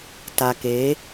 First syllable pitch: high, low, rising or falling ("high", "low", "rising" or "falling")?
low